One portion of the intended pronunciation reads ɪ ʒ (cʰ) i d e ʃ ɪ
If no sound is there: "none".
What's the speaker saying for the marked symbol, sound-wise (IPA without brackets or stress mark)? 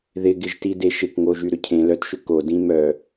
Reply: t